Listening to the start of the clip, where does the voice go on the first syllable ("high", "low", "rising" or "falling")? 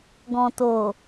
low